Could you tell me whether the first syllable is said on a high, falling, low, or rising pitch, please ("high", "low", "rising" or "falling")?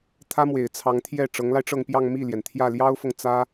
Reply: high